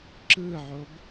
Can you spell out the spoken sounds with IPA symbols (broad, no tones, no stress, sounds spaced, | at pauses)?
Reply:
ǁ ɯ ʕ o b